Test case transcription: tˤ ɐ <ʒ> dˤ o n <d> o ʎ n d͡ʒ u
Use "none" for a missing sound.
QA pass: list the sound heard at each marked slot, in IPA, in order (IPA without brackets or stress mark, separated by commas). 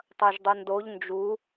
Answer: ʒ, d